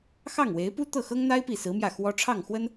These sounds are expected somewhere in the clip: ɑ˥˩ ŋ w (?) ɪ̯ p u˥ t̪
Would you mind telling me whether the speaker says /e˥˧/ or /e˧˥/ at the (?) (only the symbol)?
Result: e˧˥